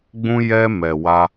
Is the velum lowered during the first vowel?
yes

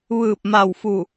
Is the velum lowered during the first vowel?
no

